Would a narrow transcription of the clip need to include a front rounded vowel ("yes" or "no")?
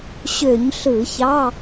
yes